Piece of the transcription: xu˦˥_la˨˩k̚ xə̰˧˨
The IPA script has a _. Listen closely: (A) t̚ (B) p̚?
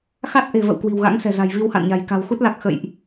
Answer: A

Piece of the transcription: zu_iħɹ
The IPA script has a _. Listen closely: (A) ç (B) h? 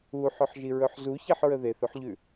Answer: A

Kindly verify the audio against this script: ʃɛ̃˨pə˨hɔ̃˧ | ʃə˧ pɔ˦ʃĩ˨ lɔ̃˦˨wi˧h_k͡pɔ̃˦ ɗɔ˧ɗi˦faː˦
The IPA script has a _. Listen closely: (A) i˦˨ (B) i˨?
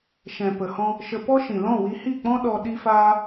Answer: A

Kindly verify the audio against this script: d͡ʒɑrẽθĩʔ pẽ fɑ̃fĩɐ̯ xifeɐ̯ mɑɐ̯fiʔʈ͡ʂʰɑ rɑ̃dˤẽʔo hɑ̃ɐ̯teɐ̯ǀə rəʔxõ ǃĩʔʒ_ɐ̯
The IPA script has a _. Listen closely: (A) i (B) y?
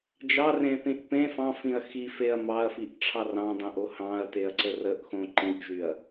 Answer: B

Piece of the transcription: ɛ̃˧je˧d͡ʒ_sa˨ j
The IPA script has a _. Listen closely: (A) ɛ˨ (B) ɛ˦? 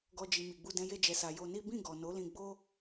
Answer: A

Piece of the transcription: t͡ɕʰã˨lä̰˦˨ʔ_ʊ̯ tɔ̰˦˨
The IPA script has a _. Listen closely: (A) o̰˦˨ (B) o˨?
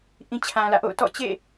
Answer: A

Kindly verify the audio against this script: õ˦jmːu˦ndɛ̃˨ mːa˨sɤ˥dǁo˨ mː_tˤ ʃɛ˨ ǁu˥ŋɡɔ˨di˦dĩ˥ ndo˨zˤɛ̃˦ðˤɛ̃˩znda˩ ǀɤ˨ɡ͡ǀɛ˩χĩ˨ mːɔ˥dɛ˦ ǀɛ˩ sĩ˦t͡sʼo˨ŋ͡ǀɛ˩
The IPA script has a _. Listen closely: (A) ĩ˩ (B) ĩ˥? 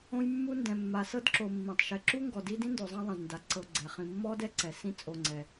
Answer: A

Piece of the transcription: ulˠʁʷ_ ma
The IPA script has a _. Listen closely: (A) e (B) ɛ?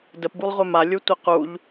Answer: B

